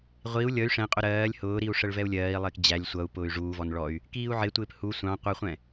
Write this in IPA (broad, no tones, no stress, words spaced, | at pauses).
ʁʷiu̯ lʲʌy̯ ʂɛ̃qʼʊ ɾɜːlʲ hʊːɾiu̯ʂəɭvɛu̯ lʲɜːi̯lˠɪːk d͡ʑælʲ sʷʌu̯ pʊːy̯ʐuːvɔn ɭɔy̯ | kiːu̯ʕɪtʷɪːp hu sʷɑ̃ qʷʌχʷɛ̃